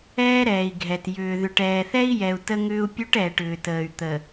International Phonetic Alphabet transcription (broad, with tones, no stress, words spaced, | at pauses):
ɛː˦ɾɛː˨i̯ɡʱɛ˨t jʏː˨ðʏ˨ʈ ɛː˨θɛ˦i̯jɛ˨u̯ tə˦ŋʏː˦u̯pʲu˦ʈ ɛː˨ʈʏː˨təː˨y̯ t̪ə˨